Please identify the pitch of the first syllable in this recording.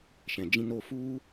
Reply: low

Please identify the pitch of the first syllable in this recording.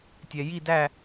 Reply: low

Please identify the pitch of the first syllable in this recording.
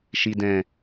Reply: low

